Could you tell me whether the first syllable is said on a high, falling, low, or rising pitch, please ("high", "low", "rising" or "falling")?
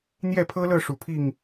falling